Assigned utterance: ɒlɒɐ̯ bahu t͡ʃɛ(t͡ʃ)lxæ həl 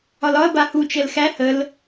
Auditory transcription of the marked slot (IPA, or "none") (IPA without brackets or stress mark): none